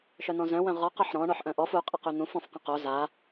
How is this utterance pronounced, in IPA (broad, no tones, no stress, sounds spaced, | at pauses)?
ʃ œ n̪ ɔ̃ z œ̃ w œ̃ ʁ ɔ q ɔ ħ ɾ ɔ̃ ɳ ɔ ħ ʔ œ̃ ʔ ɔ f u qʼ a q y n̪ ũ f ɔ̃ f q ə̃ q o z a